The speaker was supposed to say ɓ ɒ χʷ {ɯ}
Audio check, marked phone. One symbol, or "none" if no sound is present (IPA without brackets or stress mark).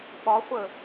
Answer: ə